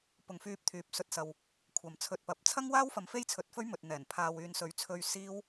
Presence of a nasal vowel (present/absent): absent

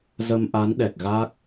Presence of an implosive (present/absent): present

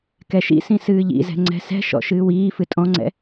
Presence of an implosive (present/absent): absent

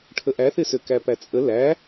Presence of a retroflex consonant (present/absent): present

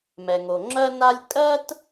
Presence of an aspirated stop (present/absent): absent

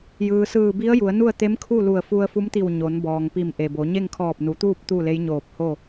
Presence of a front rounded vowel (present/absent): absent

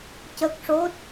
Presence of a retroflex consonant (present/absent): present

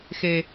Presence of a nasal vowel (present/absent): absent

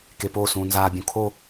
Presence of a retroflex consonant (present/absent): absent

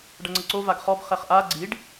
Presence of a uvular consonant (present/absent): present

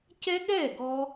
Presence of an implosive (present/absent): present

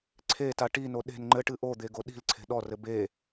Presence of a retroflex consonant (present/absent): present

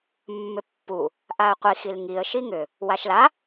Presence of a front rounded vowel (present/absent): present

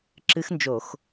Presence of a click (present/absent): present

